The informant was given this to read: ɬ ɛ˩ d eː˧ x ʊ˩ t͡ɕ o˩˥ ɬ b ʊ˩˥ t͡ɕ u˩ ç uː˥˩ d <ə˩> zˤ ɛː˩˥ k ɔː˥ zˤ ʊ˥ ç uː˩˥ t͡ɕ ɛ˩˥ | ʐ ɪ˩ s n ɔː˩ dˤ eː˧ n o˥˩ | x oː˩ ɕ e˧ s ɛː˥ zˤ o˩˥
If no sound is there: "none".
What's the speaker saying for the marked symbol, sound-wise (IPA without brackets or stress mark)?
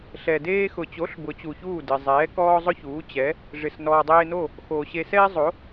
ɪ˩